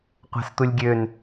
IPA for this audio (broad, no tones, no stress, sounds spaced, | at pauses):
qʷ a̤ s t̪ u lʲ ɡʲ ø n